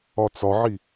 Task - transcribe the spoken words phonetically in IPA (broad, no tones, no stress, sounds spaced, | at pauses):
ɒ t͡s ɒ ʕ i